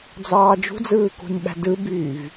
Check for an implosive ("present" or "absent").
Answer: present